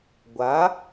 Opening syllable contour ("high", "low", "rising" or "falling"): rising